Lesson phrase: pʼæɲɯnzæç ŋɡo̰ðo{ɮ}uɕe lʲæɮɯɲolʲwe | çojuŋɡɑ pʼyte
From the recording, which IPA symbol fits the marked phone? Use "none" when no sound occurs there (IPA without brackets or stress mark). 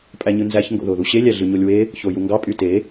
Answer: ð